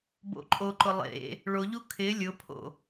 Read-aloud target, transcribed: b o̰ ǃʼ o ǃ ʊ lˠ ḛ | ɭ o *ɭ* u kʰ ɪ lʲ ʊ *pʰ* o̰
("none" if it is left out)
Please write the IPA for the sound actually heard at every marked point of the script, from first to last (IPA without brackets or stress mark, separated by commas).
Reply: ʎ, pʰ